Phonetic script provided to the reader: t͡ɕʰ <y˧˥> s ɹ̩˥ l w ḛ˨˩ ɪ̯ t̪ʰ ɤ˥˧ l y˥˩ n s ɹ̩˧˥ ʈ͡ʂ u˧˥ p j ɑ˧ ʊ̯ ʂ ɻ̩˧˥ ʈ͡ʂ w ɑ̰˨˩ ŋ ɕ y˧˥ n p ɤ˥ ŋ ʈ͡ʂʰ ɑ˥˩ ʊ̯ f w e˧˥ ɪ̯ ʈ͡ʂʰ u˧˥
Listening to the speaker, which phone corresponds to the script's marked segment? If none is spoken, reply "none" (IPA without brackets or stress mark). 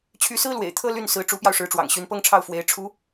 y˧˥